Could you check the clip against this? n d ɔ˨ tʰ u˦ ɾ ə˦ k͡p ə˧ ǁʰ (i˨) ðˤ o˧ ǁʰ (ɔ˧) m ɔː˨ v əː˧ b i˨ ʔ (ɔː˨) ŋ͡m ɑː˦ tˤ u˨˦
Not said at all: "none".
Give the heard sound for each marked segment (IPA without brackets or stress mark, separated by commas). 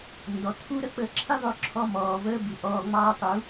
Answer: i˦, ɔ˧, ɔː˧